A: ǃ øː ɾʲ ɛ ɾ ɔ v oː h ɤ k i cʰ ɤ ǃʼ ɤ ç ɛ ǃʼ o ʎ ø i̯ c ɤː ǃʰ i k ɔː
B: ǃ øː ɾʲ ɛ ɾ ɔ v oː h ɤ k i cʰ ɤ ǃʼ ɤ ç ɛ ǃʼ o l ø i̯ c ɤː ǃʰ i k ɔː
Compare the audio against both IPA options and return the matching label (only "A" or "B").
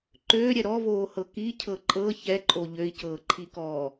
A